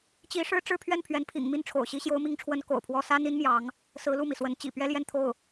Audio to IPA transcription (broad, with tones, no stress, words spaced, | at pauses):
t͡ɕi˧˥ʂɻ̩˥ ʈ͡ʂɻ̩˥˧pʰɥɛ˥˩n pʰɥɛ˧˥npʰḭ˨˩ŋ mi˥˩nʈ͡ʂʰo̰˨˩ʊ̯ ɕi˧˥ɕjo˧˥ʊ̯mi˧˥ŋʈ͡ʂʰwə˧˥n ko̰˨˩ʊ̯pʰwɔ˥ sa˥ni˥nmjɑ˧˥ŋ | sɹ̩˧˥lu˥˩mi˩swə˧˥n t͡ɕḭ˨˩ pɥɛ˥ljɛ˥˧nt̪ʰo˥˩ʊ̯